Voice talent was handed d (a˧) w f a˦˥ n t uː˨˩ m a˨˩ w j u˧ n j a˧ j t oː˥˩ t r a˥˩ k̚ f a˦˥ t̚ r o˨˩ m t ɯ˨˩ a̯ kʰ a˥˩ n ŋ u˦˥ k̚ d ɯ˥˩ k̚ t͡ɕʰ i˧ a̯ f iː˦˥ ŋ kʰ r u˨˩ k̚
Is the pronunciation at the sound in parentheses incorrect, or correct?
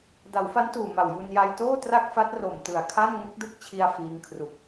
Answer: incorrect